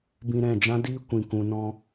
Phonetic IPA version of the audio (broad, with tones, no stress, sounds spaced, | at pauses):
b ĩ˧ ɾ ɛ̃˦˨ d͡ʒ ã˦ d iː˦ kʷ ĩ˨ k ũ˨ n ɔ̃˧